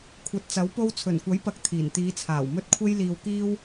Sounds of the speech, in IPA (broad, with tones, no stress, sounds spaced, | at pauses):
kʷʰ ɐ˨˥ t̚ t͡s ɐ˨˥ w p o˥ w t͡sʰ ɵ˨˩ n kʷ ɐ˨˥ j p ɐ˨ k̚ t̪ʰ iː˨˩ n t̪ iː˨˧ t͡sʰ aː˨˩ w m ɵ˧ t̚ kʷʰ e˧ j l iː˨ w k iː˧ w